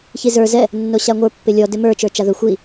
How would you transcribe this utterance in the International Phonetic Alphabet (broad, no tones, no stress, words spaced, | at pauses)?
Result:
çizə˞ zɛ | nːoɕaŋʷə˞ pːɪlʲɔ dɪmə˞ t͡ʃə˞t͡ʃaðɵ xʷi